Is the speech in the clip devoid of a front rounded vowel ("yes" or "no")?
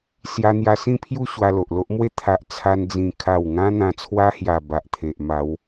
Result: yes